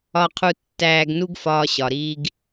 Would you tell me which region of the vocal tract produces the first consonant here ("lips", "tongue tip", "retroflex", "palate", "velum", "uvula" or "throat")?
uvula